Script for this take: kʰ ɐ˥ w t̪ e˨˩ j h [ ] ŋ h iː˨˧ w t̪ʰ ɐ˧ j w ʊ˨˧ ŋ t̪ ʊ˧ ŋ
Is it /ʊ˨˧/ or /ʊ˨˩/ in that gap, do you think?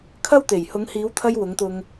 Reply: ʊ˨˧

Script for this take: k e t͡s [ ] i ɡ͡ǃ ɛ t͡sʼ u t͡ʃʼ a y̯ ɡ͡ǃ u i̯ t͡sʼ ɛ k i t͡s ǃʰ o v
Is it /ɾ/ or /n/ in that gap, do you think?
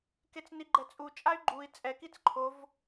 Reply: n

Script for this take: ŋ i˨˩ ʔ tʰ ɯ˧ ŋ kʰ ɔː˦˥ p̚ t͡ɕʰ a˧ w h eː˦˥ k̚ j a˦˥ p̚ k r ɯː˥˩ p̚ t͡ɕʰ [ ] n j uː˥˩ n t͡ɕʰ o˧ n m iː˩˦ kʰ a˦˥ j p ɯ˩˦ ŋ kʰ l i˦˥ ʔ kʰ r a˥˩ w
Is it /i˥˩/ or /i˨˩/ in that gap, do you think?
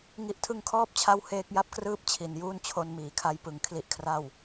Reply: i˨˩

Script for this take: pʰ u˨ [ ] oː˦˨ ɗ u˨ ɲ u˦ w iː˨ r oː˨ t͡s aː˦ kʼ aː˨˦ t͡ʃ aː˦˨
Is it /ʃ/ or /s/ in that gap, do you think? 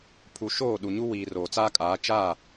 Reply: ʃ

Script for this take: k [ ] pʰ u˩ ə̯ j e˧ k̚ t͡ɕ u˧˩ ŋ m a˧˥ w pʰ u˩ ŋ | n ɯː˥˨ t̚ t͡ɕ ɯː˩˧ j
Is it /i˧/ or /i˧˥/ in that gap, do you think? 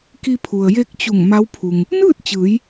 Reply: i˧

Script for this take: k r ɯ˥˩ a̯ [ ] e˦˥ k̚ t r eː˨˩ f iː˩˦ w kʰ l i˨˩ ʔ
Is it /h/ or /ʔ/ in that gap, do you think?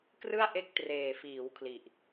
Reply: ʔ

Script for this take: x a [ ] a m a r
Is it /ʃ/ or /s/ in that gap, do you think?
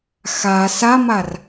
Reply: s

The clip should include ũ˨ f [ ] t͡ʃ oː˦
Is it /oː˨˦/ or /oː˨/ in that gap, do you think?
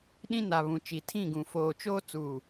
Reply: oː˨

